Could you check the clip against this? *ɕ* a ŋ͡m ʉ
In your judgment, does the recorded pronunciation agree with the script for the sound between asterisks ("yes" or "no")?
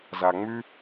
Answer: no